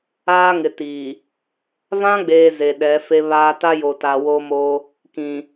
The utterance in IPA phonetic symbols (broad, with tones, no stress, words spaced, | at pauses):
aː˦ŋɪ˨ti˨ | vã˦ɡ͡beː˨ ze˨ɗɛ˨˦fe˦βaː˦ ta˦jo˨ta˨ wo˦mo˦ | kĩ˨